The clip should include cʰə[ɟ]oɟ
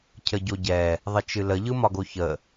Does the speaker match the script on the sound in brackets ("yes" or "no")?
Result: yes